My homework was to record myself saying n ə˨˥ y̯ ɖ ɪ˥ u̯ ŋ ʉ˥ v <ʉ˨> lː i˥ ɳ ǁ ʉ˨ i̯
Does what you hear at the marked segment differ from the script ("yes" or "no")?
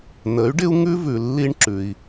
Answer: no